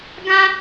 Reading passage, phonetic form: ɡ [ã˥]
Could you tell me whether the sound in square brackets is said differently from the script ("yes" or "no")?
no